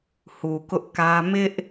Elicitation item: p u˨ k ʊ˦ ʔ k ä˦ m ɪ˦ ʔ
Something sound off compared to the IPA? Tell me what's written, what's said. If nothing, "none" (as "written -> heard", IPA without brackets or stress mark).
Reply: p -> h